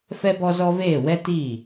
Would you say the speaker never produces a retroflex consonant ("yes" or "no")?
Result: yes